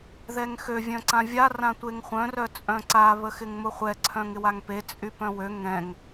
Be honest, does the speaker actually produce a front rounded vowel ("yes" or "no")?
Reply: yes